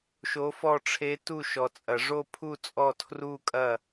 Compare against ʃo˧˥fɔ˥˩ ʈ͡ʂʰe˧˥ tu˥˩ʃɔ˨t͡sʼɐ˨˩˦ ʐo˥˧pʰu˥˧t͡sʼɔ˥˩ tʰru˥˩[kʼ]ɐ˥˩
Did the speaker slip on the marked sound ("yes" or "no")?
no